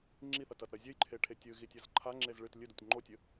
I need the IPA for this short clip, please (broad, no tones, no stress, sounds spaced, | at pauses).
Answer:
ŋ͡ǁ i θ ɐ t ɐ t ɾ ɐ zʲ ɘ j ǃʰ e ʈʰ e tʲ ɨ ɣ i tʲ ɐ z ǃʰ a ŋ͡ǁ e z ɭ ɨ t lʲ ɨ d ɔ tʲ ŋ͡ǃ o tʲ ɘ